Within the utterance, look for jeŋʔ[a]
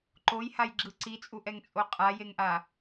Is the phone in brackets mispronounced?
no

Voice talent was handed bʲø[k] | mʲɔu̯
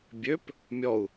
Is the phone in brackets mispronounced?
yes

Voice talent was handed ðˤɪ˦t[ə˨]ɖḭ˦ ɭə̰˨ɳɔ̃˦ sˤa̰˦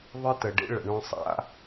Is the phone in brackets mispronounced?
no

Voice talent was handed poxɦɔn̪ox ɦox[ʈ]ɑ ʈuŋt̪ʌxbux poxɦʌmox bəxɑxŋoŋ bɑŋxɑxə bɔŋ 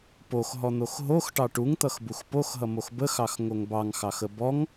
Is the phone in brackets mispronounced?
no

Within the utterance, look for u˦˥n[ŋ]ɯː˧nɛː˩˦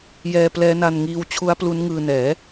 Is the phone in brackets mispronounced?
no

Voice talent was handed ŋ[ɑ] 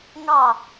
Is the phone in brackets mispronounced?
no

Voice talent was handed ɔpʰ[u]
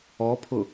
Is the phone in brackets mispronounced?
yes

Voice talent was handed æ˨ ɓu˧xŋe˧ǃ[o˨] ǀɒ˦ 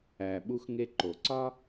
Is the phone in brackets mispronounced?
no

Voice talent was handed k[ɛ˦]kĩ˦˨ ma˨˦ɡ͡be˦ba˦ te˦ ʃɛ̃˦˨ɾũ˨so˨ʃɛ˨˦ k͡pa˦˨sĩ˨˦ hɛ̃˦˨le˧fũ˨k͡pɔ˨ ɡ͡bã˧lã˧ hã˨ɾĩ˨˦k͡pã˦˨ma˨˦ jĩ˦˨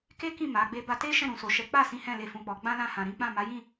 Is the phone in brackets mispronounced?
yes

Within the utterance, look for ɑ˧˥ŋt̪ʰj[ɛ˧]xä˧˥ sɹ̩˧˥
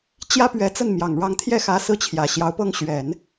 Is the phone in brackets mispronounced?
yes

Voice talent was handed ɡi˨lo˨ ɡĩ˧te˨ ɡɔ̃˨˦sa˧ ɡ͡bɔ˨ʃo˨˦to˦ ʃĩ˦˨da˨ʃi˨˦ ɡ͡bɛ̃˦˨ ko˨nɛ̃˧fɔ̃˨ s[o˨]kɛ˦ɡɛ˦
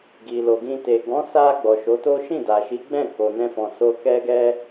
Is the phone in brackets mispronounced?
yes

